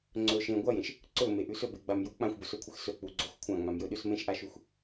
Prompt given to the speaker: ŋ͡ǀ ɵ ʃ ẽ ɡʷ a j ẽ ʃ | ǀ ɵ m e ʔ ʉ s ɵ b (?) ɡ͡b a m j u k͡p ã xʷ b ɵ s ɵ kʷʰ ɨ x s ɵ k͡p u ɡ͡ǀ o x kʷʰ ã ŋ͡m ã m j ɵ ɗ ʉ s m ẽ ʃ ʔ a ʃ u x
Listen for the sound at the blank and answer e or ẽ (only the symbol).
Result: e